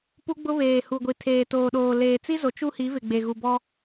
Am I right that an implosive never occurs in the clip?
no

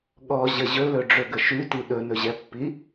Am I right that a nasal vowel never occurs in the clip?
yes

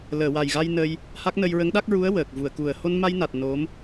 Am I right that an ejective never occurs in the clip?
yes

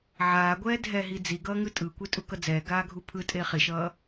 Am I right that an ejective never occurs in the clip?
no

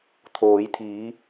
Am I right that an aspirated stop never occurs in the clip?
no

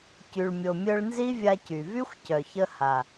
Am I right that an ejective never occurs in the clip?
yes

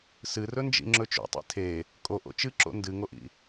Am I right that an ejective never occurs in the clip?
no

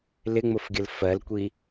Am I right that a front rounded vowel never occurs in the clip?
yes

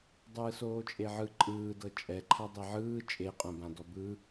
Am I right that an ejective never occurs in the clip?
no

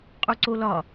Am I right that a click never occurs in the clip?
no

